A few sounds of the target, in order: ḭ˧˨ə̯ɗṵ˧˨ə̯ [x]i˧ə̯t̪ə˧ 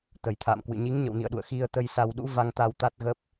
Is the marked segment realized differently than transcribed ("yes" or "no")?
no